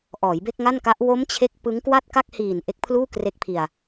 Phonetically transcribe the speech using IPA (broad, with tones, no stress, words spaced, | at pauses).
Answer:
ʔɔː˩˦jbe˥˩k̚ŋa˥˩nka˦˥ʔ wo˦˥m t͡ɕʰe˥˩k̚ pɯ˦˥ŋkwa˥˩t̚ ka˥˩k̚hiː˨˩n ʔe˦˥k̚pʰluː˥˩kre˦˥k̚pʰi˧a̯